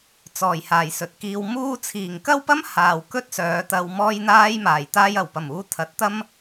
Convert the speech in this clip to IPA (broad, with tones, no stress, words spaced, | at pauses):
t͡sɔː˨˩jhaː˨˩j sɵ˨t̚kiː˧wmuː˥ t͡sʰiː˨˩ŋkɐ˥wpɐ˥m haː˨wkɵ˥t̚sœː˨˧t̪ɐ˧w mɔː˥jn̪aː˥jmaː˨˩j t̪aː˧jɐ˨˩wpɐ˨˩muː˨˧ t̪ʰɐ˨˥t̚t̪ɐ˥m